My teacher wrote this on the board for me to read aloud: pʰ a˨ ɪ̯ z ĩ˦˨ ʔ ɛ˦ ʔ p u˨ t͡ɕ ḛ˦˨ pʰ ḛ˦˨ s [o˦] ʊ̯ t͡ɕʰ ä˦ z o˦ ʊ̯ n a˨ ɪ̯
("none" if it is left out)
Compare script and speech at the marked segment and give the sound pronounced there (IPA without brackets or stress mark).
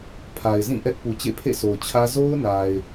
o˨